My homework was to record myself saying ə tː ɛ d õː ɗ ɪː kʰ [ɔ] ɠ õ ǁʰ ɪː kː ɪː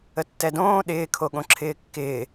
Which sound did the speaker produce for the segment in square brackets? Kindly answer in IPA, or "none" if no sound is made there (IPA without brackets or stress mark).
o